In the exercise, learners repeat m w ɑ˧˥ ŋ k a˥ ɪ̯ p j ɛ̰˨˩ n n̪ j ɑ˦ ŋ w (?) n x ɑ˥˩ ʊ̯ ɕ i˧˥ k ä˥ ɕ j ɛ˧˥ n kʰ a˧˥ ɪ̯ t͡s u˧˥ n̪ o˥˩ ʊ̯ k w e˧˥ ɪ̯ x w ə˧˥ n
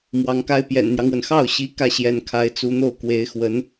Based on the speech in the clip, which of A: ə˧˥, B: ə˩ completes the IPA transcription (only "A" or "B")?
B